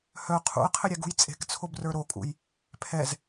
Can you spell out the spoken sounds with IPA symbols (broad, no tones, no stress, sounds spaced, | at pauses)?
h œ qʰ ṵ ə̯ qʰ ɘ ɾʲ ɛ ɡ ṳ j t͡sʼ e̤ k t͡sʰ o b r ə˞ ɾ o kʼ ṵ j | pʰ ɛ z